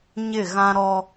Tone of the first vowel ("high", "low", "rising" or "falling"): falling